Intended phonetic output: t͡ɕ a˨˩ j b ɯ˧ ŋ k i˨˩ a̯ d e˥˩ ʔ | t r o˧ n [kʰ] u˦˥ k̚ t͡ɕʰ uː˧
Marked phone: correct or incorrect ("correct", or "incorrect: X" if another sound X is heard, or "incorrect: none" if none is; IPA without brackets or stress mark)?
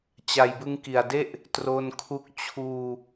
correct